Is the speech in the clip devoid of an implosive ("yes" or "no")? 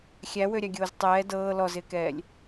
yes